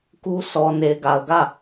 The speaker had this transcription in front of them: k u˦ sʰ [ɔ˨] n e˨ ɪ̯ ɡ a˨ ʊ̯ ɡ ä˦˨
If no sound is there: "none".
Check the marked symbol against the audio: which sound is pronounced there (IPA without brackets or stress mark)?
ɔ˨